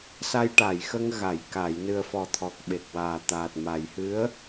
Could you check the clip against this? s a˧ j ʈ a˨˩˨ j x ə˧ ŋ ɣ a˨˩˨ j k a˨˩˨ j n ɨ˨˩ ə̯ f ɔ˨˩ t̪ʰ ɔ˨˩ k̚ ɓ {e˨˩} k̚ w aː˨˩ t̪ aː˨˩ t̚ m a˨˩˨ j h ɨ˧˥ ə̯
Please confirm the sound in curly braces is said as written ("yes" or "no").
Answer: yes